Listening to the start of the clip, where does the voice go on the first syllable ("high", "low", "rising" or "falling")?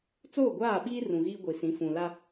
falling